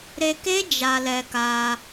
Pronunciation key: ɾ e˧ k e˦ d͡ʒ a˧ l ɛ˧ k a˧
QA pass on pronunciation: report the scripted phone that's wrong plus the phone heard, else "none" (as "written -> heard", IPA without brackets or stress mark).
none